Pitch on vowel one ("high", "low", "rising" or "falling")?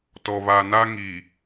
low